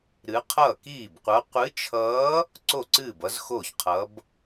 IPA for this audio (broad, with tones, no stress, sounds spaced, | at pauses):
ɾ ɨ˧˥ qʰ ʌː˥˩ k iː˥˩ b qʷ ʌ˧˥ qʷ ɨ˧˥ t͡ʃʰ ʌː˧˥ | ǀ o˥˩ ǀ ɨː˥˩ b ʌ˧˥ z x oː˥˩ ç qʰ ʌ˧˥ b